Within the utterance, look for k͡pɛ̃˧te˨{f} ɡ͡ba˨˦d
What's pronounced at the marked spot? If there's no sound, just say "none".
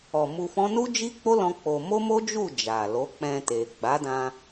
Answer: none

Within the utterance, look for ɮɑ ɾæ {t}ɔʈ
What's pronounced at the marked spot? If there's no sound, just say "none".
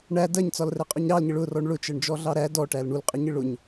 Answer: d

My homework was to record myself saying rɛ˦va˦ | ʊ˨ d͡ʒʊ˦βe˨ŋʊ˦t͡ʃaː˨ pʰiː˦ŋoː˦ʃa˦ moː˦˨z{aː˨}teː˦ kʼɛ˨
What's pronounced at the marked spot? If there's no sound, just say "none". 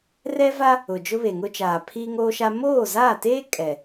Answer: aː˦˨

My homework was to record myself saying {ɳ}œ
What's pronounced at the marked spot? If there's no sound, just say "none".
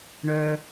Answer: ɳ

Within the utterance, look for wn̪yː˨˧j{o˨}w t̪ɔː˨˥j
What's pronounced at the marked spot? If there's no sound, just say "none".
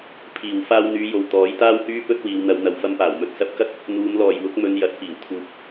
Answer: o˨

